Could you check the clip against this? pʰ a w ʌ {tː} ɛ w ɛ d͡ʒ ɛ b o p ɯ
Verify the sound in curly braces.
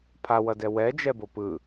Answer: incorrect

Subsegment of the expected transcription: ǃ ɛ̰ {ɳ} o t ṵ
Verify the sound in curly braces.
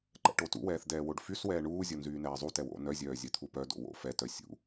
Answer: incorrect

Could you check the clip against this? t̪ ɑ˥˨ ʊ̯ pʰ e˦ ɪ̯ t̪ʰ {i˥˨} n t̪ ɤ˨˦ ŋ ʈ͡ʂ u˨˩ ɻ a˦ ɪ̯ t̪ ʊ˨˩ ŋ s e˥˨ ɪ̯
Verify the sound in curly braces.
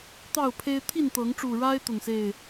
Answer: correct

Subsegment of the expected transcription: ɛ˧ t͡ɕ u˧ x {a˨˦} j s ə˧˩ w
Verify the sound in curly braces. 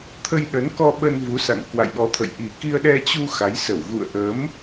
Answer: correct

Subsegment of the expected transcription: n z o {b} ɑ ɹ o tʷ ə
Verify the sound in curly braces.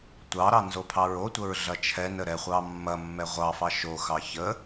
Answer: incorrect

